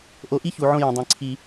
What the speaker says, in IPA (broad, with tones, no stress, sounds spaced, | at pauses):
ʔ o˨˦ ʔ i˦ ç u˨ ʕ õ˧ j ə̃˨ dˤ ĩ˨ ǀʰ i˧